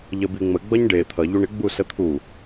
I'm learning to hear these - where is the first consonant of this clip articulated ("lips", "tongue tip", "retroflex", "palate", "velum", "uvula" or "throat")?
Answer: palate